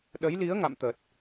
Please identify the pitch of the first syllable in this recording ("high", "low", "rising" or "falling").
rising